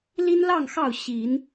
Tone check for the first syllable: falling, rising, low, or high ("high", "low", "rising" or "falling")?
high